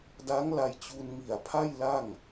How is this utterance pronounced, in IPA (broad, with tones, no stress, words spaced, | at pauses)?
da˦˥ŋla˧jt͡ɕu˧nŋi˨˩a̯ pʰa˥˩jla˥˩ŋ